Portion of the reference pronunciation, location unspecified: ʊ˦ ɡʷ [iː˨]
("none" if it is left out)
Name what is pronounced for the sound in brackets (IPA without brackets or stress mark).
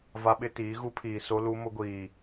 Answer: iː˨